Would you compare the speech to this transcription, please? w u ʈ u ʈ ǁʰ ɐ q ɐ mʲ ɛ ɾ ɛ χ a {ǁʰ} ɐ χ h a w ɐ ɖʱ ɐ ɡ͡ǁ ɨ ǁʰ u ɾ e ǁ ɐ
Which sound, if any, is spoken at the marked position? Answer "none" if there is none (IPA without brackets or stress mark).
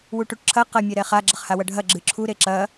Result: ɡ͡ǁ